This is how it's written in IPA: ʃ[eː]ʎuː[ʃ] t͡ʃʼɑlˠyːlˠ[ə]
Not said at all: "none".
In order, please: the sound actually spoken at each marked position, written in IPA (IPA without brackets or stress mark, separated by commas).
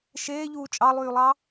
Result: eː, none, ɑ